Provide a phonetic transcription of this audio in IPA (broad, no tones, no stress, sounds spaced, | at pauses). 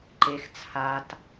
ǃ e x t͡sʰ a t